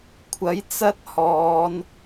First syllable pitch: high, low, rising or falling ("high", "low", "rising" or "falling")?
rising